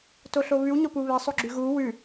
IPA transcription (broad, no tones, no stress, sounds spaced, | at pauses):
t o ɬ o β ʉ w ɲ o p u β ɛ sˤ o ɡ͡ǁ ʉ ɣ u w ʉ